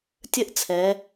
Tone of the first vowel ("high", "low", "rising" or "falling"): falling